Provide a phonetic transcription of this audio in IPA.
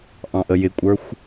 ʔ ɑ̃ ʔ ə j ɪ kʷʼ ə˞ xʷ

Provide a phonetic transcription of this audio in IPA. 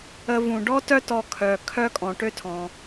ə˨ v ũ˩ ɖ ɔ˥ t œ˦ t ɔ˨ kʰ œ˩ kʰ œ˦ kʼ ɔ̃˩ ʈ ø˦ tʰ ɔ̃˩

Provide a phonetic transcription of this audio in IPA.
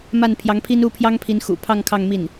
m a˥˩ n pʰ j ɑ˧˥ ŋ pʰ i˥ n u˥˩ pʰ j ɑ˥ ŋ pʰ i˧˥ n x ṵ˨˩ pʰ ɑ˥˧ ŋ kʰ ɑ˥˧ ŋ m i˥˩ n

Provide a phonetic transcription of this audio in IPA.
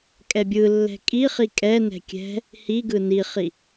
kʼ ɛ bʲ ɯ lː ɛ̤ kʼ i χ i kʼ ɛ n ɛ̤ kʲ ɛ̤ | h i ɡ ɯ n i χ i

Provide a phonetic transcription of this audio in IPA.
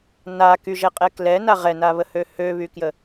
n a k y ʒ ɛ qʼ ɛ k l ɛ n a ʁ ɛ n a β ə h ø h ø β y k j ə

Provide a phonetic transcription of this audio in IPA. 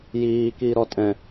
j iː k iː ɾ ɔ tʼ ɛ̃

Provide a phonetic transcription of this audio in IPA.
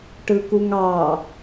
ʈ ɯ k u ŋ ɑ

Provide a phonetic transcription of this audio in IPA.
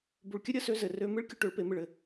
b u˨ ɭ kʲ ə˦ ɾʲ ə˨˦ s ø˧ z ɘ˨ r ø˦ m ɨ˦ ɭ kʲ ʊ˧ ʈ ø˨˦ ɭ p e˨˦ m ɨ˨ ɭ ɘ˨

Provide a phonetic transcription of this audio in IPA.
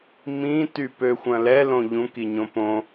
m ĩ t y p ø xʷ ɐ̃ l ɛ l õ ʎ ũ k i ɲ õ p õ

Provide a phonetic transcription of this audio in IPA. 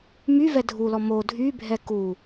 m y v ɛ dʱ u l ɔ m o dʱ y bʱ ɛ k u

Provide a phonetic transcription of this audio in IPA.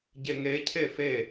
ɟ e ŋ e cʰ e f e

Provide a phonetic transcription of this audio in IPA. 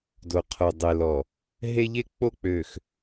d o˨ qʰ o˨ dˤ e˨ l ɔ˨ | ɦ e˦ ʎ e˦ k͡p o˦ k͡p ø˨ x

